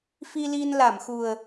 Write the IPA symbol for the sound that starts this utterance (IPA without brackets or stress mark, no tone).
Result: f